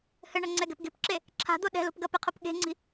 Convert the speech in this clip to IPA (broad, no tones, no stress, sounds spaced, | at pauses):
h ɘ ɳ ɐ ŋ͡ǀ ɛ ɡ ɛ̤ p ɡ e̤ p ǁ e | ǁʰ a̤ d̪ o ɗ ɛ̤ l o̤ p ɡ ɐ p e qʰ o p ɠ e̤ ŋ͡ǀ i̤